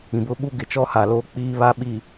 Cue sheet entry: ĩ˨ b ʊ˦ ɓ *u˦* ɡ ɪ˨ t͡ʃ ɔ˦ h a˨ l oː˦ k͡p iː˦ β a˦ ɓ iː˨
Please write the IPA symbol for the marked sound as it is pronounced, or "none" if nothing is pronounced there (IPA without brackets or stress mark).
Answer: u˦